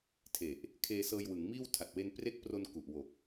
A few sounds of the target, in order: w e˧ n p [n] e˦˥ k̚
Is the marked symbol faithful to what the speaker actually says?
no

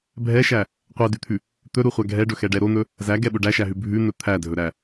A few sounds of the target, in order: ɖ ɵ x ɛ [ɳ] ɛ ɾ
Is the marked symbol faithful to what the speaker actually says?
no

